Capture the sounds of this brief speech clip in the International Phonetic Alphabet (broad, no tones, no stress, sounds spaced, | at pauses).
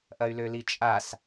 ʔ ɐ y̯ l ø l i t͡ʃʼ a s